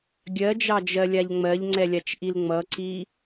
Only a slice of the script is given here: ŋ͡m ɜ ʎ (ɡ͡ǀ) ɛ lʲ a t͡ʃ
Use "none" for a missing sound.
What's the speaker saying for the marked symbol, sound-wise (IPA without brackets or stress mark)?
ŋ͡ǀ